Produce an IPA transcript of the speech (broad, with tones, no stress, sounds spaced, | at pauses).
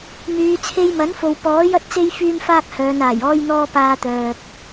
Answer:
m yː˨˧ t͡sʰ e˧ j m ɐ˨˥ n f o˨ w p ɔː˨˥ j ɐ˥ t̚ t͡s e˥ j f yː˥ m f aː˥ k̚ h œː˨˧ n aː˨˩ j ɔː˥ j n̪ ɔː˥ p aː˧ t̪ œː˨ k̚